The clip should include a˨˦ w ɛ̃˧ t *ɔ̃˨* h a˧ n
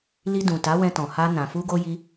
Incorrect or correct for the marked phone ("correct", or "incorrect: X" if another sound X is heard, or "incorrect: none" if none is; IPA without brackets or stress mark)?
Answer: correct